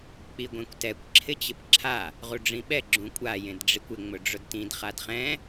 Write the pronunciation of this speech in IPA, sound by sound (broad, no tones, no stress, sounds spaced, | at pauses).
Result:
k͡p i ɡʷ ẽ kʷ t ɛ kʷ ǁʰ ɪ t͡ɕ ɪ p ǁʰ a | ʁ u ɖ͡ʐ ĩ ɓ ɛ ɡ͡ǁ ũ kʷʼ a j ẽ d ɖ͡ʐ i kʷ ɪ ŋ͡m ʊ ɖ͡ʐ ʊ d t ĩ d χ a d χ ɛ̃